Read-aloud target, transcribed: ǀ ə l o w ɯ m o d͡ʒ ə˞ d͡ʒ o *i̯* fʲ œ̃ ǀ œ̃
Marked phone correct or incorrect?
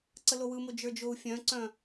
incorrect